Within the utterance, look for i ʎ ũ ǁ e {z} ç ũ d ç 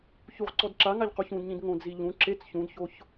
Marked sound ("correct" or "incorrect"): incorrect